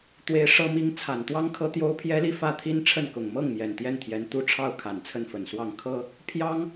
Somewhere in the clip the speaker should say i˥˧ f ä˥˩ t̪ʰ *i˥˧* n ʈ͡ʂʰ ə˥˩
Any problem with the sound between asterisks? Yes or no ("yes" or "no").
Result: yes